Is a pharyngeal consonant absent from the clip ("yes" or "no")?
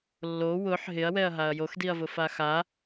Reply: no